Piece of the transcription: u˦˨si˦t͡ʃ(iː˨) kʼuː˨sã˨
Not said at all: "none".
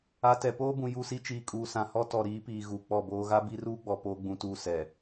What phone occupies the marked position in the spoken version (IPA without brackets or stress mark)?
iː˨